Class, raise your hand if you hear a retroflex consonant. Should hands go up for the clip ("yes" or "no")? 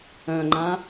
no